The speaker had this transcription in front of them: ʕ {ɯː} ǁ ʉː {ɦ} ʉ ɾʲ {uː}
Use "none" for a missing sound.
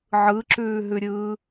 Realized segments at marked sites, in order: ɯ, ɦ, ɯː

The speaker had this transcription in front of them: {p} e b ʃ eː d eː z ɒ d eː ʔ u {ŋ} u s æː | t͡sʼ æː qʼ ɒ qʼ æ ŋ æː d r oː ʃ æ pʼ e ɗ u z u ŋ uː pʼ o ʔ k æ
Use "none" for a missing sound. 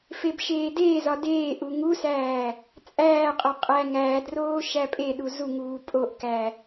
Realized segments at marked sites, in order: f, ŋ

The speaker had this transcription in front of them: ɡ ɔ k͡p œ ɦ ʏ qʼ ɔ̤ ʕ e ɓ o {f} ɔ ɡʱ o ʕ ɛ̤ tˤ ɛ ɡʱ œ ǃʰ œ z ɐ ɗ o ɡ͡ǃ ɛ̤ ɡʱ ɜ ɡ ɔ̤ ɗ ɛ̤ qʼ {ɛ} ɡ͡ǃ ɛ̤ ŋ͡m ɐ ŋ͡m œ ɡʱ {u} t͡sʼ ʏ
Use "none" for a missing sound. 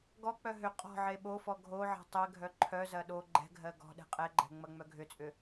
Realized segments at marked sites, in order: f, ɛ, ʏ

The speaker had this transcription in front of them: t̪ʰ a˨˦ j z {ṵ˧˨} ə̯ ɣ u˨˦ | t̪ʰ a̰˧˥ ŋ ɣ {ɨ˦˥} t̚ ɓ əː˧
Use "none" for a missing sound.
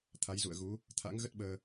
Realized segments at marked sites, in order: ṵ˧˨, ə˦˥

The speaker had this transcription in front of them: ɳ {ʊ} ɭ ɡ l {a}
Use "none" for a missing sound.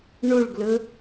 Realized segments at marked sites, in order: ʊ, ə

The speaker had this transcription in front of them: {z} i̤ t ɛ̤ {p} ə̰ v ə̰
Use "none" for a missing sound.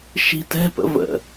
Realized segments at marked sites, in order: ʃ, p

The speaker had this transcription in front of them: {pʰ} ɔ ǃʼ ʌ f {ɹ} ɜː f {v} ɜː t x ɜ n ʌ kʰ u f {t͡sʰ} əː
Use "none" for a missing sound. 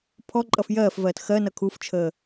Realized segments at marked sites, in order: pʰ, j, v, t͡ʃʰ

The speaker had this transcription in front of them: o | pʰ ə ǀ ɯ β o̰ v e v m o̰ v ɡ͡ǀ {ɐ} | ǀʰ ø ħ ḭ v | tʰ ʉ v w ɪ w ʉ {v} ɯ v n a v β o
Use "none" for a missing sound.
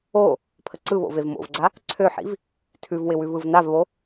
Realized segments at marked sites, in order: a, v

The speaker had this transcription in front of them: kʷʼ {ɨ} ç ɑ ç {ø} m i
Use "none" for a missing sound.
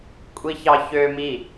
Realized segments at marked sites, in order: i, ø

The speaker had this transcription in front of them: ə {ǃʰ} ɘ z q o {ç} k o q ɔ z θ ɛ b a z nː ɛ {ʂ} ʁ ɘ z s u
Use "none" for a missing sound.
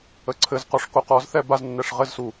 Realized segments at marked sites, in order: ǀʰ, ʂ, ʂ

